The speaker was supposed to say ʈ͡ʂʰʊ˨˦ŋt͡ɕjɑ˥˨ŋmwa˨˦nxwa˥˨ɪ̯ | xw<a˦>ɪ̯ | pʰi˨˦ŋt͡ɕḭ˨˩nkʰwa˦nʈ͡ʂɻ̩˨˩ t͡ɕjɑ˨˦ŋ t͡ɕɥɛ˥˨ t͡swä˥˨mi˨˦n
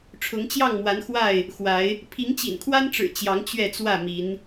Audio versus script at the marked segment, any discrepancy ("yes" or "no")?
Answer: yes